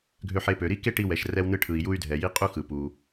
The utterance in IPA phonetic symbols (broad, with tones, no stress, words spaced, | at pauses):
ɡʱø˧ħe˧pø˩ ɾi˥ke˥ʈi˧ wɛ˩ʃrɛ˧wnɯ˧ʈʰɯ˩i̯ ju˧y̯dʱɛ˩ji˧ qʼu˥xɯ˩pu˩